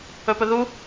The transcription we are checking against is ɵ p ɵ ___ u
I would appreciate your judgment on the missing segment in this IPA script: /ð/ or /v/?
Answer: ð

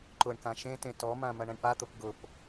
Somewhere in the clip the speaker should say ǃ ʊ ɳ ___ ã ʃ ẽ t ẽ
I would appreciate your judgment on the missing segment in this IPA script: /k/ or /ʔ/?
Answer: k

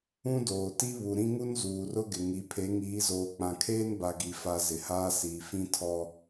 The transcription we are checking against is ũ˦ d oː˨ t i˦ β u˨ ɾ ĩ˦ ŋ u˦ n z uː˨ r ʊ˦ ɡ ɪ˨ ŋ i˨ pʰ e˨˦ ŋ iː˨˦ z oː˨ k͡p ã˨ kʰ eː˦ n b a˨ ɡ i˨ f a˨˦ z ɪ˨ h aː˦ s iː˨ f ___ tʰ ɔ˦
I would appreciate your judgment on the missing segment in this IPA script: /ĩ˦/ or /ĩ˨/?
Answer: ĩ˦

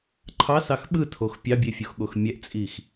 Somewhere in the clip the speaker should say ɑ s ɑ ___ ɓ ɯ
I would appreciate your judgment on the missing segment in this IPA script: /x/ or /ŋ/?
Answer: x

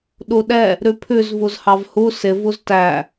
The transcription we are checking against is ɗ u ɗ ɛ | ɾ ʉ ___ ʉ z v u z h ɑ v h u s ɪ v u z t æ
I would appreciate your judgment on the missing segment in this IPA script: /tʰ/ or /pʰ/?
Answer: pʰ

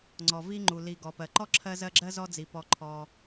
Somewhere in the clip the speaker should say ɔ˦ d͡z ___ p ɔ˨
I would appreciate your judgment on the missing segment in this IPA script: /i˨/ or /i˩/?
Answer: i˩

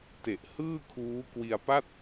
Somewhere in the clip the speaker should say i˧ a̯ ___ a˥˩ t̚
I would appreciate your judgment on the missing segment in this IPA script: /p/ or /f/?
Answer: p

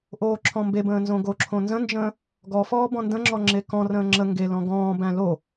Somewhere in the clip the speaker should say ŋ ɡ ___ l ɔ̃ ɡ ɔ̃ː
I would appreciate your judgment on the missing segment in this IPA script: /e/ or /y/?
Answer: e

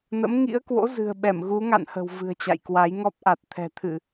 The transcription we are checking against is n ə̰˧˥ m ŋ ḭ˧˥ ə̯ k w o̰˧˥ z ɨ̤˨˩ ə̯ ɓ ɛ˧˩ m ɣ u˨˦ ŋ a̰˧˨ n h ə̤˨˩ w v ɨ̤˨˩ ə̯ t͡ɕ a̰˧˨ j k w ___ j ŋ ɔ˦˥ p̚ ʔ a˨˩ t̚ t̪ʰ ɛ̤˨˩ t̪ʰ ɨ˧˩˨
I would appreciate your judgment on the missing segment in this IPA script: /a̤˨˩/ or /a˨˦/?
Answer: a˨˦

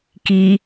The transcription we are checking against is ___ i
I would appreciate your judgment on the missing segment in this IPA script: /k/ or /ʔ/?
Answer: k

